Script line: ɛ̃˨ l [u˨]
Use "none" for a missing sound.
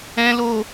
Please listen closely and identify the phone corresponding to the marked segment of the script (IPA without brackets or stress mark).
o˨